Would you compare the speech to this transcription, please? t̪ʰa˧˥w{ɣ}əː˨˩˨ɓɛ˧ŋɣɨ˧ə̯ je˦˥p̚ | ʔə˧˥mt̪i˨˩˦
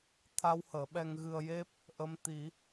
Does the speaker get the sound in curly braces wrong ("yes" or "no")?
yes